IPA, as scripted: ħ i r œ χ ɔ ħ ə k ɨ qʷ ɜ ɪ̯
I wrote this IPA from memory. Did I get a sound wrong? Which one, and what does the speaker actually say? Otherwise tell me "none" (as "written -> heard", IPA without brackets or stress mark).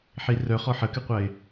none